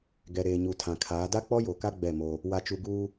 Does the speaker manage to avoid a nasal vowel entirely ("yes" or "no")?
no